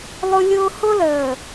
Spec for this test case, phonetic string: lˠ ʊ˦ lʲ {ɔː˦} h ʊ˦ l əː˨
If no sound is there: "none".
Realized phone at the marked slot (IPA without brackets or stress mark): ʊː˦